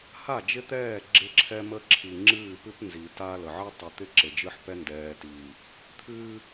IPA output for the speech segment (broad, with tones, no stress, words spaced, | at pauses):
ha˦˨d͡ʒɪ˦t̪ɛː˦˨ ɡ͡ǁɪ˦ǁʰɛ˦mə˦ǁʰi˨ ŋ͡ǁɨː˦˨pɨ˦p nzi˨ ta˦lə˨ ʕɨ˦tˤɨ˨t̪ɪ˦ ǁɪ˨d͡ʒɨ˦ħpɛ˦ ndɛː˨tiː˨ | t̪ʰɨː˦